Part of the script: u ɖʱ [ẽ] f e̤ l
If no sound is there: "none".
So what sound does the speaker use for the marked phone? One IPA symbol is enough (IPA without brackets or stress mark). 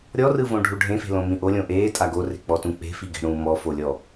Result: ẽ